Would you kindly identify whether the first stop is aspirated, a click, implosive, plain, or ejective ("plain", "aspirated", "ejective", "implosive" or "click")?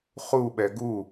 implosive